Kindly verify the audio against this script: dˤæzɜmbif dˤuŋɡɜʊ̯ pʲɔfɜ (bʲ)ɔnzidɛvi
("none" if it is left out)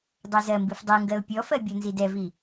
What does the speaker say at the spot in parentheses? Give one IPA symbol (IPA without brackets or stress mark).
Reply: bʲ